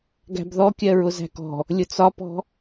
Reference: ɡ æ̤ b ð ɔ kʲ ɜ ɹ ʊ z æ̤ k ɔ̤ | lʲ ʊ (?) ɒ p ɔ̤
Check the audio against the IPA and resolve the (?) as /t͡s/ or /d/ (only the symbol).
t͡s